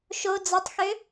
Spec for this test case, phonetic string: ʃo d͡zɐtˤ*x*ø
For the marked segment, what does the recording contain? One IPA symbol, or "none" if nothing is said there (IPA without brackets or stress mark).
x